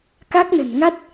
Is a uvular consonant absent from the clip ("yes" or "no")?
yes